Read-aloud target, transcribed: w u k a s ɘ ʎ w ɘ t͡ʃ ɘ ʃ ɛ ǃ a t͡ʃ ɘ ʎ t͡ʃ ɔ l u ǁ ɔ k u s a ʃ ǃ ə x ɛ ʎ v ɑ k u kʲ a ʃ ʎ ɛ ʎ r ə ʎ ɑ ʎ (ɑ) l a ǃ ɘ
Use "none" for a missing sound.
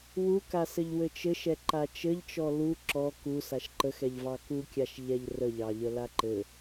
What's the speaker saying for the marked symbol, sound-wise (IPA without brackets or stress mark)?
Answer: ə